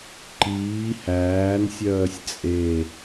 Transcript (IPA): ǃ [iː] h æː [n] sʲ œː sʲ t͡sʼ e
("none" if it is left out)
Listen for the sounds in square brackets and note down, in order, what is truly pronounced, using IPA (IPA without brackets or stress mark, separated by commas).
iː, n